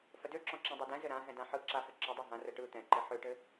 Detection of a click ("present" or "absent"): present